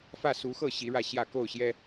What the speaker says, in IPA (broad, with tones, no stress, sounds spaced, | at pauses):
f ä˥˨ s u˨˦ x ɤ˥˨ ɕ i˨˦ ɻ ä˥˨ ɕ j ä˥˨ k o˥˨ ʊ̯ ɕ j ɛ˦